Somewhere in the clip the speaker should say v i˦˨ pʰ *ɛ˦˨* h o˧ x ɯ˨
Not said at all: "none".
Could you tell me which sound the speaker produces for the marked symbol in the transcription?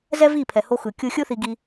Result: ɛ˨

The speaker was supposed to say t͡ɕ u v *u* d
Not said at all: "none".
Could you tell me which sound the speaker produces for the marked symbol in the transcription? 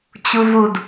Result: u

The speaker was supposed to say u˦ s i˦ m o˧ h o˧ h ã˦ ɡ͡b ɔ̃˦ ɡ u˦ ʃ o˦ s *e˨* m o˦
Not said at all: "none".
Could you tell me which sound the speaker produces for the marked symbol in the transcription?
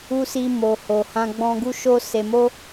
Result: e˧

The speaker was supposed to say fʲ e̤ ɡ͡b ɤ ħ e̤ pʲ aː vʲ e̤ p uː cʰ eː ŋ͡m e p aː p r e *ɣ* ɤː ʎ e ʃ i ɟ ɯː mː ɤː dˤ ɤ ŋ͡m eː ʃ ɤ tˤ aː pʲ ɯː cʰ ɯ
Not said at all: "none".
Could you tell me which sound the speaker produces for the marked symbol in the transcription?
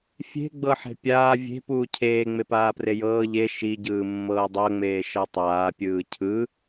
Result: j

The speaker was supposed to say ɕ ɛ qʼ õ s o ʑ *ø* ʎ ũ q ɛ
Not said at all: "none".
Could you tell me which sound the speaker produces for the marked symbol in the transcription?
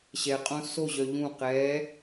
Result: œ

